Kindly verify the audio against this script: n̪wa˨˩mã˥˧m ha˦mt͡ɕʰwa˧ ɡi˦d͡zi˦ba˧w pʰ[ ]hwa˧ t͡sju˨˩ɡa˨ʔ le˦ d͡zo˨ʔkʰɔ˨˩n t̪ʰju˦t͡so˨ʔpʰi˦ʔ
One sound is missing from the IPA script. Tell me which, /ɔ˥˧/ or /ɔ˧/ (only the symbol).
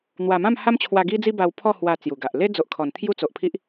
ɔ˥˧